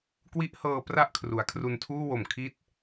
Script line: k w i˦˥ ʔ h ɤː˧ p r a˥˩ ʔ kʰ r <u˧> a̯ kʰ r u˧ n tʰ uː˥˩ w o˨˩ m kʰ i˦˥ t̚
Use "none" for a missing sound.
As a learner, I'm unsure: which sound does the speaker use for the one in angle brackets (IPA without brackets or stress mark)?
u˩˦